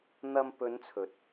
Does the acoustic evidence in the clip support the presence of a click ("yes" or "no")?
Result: no